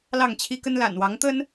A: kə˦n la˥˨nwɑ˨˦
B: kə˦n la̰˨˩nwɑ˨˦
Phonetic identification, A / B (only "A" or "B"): B